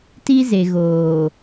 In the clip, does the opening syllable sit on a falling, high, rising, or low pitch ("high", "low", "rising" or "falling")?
high